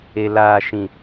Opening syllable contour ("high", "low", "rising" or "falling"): low